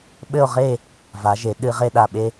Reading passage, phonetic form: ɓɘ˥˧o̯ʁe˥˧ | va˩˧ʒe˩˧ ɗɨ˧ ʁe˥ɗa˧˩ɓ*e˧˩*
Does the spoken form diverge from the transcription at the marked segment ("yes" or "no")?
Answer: yes